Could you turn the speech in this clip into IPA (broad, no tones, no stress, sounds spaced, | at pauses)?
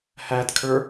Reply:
h æ d kʰ ə˞